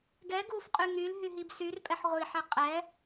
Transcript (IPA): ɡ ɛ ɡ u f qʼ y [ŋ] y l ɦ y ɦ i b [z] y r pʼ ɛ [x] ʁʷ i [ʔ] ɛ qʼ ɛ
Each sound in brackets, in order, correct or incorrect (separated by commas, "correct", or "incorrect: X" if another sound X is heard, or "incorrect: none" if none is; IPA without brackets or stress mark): correct, incorrect: s, incorrect: ħ, incorrect: ħ